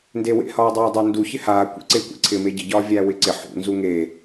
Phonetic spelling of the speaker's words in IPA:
ndewḛhɒːdˤæː dˤɪːndu çɪhaː kʷḛǀɪːkʷḭ ǀʰɪːmeɟɪ ɟɒːvʲæːwɪǀɪ ħṵ nzuŋe

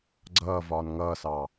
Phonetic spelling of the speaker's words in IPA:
ɡ͡ǀʌːvɒːn ŋʌːsɑː

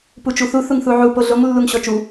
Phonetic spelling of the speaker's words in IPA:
put͡ʃuθu θuŋθuʕu poɮoŋ lːuŋɕɔt͡ʃu

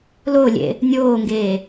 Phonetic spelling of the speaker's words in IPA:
lolʲḛ | nʲoːŋɡeː

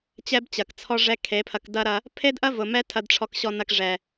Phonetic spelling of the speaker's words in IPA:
t͡ɕɛ˦bt͡ɕɐ˨kt͡sʰɔ˦ʐɛ˦ kʰe˨˦pʰɐ˧kdɐ˦ɾɐ˧ | pʰe˦dʔɐ˦ vʊ˨mɛ˦ tʰɐ˧dʈ͡ʂʰɔ˧kɕɔ˧nɐ˧k ʐɛ˨

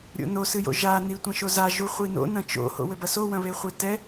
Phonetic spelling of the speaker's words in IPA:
ɾʲo̰no sɨjo̰ʒa nitʷɐ̃ʃoza ʒuχʷino̰ nɐ̃t͡ʃo̰ ho̰wɘbɐso wɐ̃βeχʷetɛ

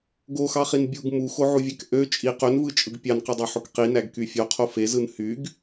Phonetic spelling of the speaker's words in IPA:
ɡoxɑχin bʲuɡ muxoʕuvʲæk ʔø t͡ʃʼi qønvɯt͡ʃʼɯɡ pʲɑnqɯdˤoħok qinæɡky fʲoqʰo fezɯn hyɡ

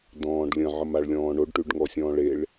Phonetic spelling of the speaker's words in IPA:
dɔ̃ːɖlʲə̃ʕəm aɭlʲɔ̃ːɳoɖ ʈʉɖŋɔsʲɔ̃ːɭeɭ

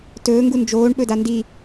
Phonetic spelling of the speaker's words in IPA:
tɵː ŋɡund͡ʒoːɳ ɓɵdandi

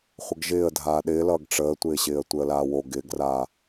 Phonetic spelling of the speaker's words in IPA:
χʷəɡʒɪːə̯ dʱaːɗɪːlʌːɡ ʈ͡ʂəːtʷɪːɕɪːə̯ tʷɪə̯laːwo ɡɪːɡraː

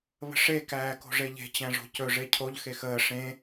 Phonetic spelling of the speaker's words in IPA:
βə̤ʂe kæːko̤ʐeʎe̤ t͡ɕæ̃ʐo̤cɵ ʐecʰoʎ xexəː ʂẽ

